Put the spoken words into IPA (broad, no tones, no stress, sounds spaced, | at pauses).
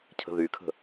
cʰ ə̤ ð y kʰ ə̤